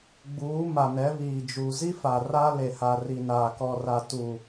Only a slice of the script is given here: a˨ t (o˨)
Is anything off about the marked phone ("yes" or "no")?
yes